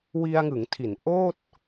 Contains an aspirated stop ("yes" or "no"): yes